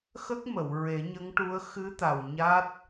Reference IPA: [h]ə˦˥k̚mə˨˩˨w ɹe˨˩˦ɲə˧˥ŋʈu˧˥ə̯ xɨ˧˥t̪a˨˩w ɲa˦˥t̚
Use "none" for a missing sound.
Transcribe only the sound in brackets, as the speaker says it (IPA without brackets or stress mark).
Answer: x